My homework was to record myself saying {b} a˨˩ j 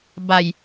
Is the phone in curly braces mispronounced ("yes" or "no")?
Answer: no